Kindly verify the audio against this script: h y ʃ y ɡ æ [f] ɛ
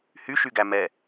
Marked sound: incorrect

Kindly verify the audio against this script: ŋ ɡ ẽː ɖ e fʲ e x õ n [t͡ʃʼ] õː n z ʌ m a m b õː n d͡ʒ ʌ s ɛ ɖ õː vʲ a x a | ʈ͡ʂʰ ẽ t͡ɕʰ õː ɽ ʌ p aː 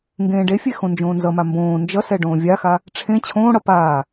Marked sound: incorrect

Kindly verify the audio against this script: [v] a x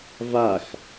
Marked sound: correct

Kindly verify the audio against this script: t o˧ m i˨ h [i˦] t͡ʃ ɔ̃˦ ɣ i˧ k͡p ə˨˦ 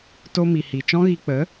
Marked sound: incorrect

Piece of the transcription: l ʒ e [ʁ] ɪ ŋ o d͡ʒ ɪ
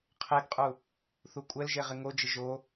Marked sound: correct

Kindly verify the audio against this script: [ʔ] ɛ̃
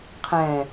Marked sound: incorrect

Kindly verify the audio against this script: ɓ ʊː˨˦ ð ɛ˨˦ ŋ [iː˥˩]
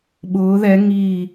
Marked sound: incorrect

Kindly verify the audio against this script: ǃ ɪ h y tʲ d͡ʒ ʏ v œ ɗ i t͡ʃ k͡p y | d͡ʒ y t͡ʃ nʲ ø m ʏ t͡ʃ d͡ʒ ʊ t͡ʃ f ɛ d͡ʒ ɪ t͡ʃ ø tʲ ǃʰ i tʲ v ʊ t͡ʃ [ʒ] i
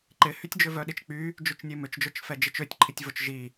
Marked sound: correct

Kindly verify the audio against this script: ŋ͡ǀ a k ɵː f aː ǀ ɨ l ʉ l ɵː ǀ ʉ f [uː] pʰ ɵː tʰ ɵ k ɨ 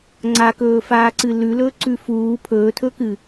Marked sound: correct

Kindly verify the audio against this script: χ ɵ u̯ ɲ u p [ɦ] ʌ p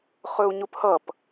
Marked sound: incorrect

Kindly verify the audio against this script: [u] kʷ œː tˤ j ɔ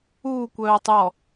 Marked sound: correct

